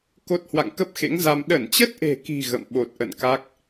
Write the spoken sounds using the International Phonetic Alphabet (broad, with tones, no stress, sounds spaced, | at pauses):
k o˦˥ t̚ h w a̰˧˨ ŋ k ə˦˥ p̚ x ḛ˧˥ ŋ z a˧ m ɗ ə˧˩ n t͡ɕ ə˦˥ t̚ ʔ e̤˨˩ k i̤˨˩ ɣ ə̰˧˨ m ɓ o˨˩ t̚ ʔ ə̰˧˨ n k a˦˥ k̚